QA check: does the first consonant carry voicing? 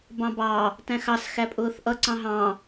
yes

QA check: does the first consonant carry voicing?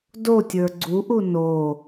yes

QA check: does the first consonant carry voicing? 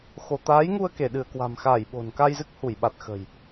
no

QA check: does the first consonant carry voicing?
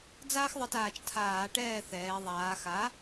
yes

